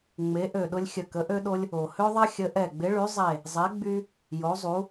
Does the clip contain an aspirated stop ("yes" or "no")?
no